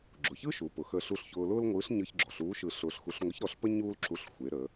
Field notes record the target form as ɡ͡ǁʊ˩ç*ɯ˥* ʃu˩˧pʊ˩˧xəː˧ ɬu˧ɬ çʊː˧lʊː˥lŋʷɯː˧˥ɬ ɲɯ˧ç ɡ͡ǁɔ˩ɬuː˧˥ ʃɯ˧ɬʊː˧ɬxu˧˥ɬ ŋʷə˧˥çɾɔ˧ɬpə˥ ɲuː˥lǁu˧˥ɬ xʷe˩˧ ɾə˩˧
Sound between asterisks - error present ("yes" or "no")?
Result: no